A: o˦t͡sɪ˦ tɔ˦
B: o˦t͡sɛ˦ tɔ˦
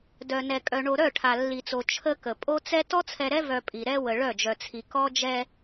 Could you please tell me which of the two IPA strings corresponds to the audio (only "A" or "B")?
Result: B